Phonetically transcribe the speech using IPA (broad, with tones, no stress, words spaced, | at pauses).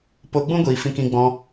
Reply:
po˧ɡ͡bũ˦ɡʷiː˨ fĩ˧kĩ˧ɡ͡bɔ̃˧